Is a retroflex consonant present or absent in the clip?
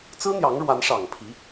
present